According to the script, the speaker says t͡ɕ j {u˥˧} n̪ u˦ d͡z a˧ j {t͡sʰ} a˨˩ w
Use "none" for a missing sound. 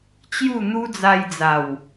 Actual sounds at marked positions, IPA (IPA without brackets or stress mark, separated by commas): u˥˧, d͡z